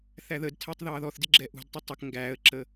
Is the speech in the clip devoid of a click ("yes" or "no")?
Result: no